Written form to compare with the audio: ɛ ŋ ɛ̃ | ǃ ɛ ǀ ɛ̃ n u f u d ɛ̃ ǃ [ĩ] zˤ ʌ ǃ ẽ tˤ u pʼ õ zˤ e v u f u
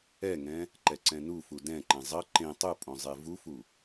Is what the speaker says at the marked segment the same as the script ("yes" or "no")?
no